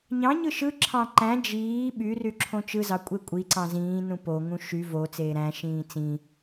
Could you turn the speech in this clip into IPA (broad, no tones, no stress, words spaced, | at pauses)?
ɲɑ̃ɲɯ ʃɯǁʰɑ̃ ǃæ̃ d͡ʒiː ɓyry ǁʰõt͡ʃɯzɑ kʷʼekʷʼiǀɑ̃ zĩːnũ poŋũ ʃy vo t͡seːɾæ̃ʃĩː t͡sĩ